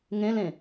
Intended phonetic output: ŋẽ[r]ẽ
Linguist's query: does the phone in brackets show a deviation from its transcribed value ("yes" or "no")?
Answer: yes